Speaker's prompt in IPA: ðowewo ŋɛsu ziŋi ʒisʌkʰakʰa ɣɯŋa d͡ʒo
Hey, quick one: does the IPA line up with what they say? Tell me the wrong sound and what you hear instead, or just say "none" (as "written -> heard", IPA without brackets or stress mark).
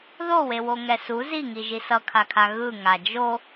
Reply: none